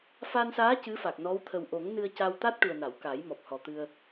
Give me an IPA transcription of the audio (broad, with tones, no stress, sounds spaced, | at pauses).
f a˧ n s aː˧˥ c ɨ˧˥ f a˨˩ k̚ n ɔ˧˥ w t̪ʰ ə˨˩ w ʔ o˨˩˦ ŋ n ɨ˧ ə̯ c a˧ w t̪ a˦˥ t̚ ʈ u˨˩ ə̯ n a˨˩˨ w k a˨˩˦ j m ɔ˨˩ p̚ h ɔ˨˩ t̪ ɨ˧ ə̯